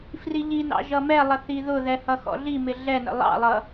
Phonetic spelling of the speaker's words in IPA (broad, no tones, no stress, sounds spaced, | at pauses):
f r i ʎ i n ɑ̰ ʒ ʌ m ɛ lˠ ə θ i ð ʊ ð ɛ h ʌ x ɔ̰ ɮ i m ɪ ɮ ɛ n ə̰ lˠ ɑ̰ lˠ ʌ